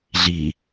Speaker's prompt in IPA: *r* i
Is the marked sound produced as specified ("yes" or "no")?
no